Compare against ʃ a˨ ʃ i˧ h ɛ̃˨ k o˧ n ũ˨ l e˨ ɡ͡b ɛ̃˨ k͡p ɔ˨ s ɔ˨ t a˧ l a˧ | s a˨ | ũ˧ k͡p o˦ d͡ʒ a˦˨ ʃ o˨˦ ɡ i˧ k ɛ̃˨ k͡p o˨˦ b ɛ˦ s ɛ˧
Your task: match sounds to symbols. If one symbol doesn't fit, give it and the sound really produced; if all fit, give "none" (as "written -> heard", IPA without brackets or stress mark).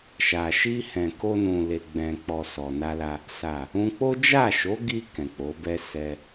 t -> n